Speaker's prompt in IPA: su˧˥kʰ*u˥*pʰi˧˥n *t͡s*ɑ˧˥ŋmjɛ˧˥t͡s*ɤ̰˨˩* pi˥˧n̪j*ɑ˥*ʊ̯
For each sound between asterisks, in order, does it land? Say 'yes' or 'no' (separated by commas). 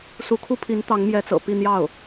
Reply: yes, no, yes, no